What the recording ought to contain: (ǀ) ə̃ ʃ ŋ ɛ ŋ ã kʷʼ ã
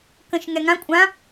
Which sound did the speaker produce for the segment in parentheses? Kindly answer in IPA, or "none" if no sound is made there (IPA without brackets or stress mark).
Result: k